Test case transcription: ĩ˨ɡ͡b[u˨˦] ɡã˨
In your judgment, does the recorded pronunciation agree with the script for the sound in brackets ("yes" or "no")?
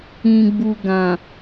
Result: no